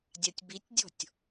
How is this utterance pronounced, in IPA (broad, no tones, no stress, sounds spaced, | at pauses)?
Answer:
dʲ a tʲ b i tʲ dʲ ɔ̤ tʲ